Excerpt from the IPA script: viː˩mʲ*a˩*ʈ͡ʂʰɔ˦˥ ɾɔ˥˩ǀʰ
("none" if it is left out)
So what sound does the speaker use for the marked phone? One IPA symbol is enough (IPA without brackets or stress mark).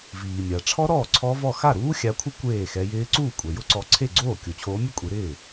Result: a˩